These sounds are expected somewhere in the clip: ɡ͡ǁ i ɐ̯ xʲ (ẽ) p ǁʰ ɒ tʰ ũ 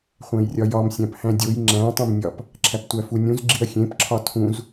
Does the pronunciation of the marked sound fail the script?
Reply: no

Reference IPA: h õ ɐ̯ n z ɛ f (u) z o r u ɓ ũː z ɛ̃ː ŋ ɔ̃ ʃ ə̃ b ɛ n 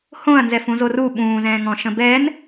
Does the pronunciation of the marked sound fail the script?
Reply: yes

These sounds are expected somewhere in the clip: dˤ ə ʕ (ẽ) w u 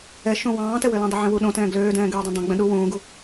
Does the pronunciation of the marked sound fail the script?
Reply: yes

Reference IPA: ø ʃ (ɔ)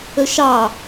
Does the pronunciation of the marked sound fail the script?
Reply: yes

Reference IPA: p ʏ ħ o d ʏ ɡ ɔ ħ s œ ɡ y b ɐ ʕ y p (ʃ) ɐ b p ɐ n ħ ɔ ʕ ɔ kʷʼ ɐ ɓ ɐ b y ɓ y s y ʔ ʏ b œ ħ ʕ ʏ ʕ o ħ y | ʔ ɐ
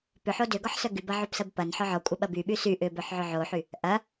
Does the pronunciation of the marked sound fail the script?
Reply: yes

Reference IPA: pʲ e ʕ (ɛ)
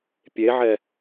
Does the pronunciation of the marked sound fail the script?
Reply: no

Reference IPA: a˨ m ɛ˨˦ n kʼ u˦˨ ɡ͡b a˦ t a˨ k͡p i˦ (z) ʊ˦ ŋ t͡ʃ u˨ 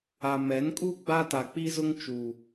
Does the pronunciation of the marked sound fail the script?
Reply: no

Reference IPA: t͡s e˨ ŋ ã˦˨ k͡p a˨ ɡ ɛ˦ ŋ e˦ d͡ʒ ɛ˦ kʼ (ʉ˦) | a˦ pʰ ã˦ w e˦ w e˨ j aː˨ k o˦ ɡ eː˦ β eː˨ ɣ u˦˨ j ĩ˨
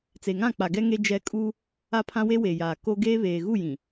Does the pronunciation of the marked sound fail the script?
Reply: yes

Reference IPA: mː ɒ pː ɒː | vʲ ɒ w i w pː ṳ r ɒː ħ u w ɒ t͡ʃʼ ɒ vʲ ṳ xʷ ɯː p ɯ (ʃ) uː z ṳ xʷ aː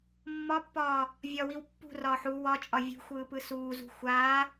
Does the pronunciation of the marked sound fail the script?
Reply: yes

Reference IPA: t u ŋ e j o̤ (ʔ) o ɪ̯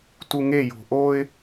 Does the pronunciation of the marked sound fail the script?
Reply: no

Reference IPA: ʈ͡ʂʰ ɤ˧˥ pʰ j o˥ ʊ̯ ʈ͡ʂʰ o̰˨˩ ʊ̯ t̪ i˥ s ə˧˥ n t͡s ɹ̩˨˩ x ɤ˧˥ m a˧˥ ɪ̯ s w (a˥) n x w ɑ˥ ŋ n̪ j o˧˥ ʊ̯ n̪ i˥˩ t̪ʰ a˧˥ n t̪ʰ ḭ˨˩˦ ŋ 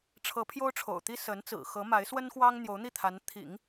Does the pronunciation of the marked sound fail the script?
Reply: yes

